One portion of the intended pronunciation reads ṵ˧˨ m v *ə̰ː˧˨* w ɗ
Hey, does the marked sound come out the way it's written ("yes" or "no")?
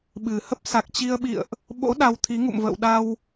yes